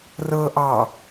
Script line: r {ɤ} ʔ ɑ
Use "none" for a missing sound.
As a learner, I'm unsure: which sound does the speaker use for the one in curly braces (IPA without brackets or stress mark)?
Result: ɤ